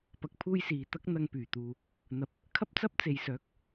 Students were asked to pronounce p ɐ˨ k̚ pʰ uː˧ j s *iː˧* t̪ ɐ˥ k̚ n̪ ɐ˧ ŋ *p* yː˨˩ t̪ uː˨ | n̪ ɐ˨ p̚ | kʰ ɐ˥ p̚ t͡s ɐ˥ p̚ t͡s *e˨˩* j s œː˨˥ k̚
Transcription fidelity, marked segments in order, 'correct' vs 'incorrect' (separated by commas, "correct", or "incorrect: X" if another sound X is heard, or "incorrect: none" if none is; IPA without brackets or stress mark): incorrect: iː˨, correct, incorrect: e˨˧